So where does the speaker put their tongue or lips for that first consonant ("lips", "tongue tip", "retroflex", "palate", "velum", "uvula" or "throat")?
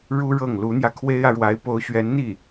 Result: retroflex